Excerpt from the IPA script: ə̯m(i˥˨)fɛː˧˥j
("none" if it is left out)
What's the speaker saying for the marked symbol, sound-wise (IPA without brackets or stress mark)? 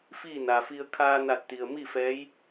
i˥˨